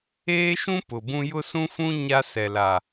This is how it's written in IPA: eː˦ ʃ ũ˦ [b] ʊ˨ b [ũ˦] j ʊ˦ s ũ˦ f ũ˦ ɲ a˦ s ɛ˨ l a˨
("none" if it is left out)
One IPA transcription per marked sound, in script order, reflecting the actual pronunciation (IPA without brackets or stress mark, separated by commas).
p, ũ˦